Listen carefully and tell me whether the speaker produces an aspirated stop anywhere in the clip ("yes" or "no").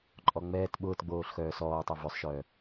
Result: no